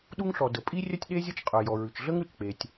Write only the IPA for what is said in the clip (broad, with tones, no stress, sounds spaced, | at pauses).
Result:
ɗ u˥ ŋ ɬ ɔ˩ d ə˩ pʼ i˥ rʲ œ˥ tʲ ɗ e˥ zʲ ə˥ t͡ʃ qʼ œ˩ j ɔ˩ ɹ ʉ˩ t͡ʃ ɮ ə˥ ŋ ɾ ʉ˩ t͡ʃ k͡p e˩ tʲ